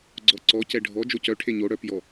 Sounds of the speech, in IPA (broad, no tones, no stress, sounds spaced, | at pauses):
ɡ͡ǀ ɔ ǀ ɔ c ɛ ɖʱ ɔ d͡ʒ o c œ ʈʰ e ɲ o ɽ œ p j ɔ